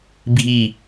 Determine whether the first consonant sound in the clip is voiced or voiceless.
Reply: voiced